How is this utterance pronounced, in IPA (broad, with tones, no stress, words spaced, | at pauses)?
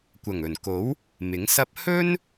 kʷɐ˨˩ŋɵ˨˩nko˨˥w | mɪ˨˥ŋsɐ˥p̚ hɵ˥n